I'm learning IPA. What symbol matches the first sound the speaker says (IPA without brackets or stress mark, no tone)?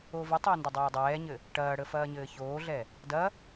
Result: o